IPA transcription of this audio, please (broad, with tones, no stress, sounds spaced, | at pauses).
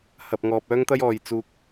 h ɐ˨ p̚ ŋ ɔː˨ p̚ œː˥ ŋ t̪ ɐ˥ j ɔː˨ j t͡s uː˧ k̚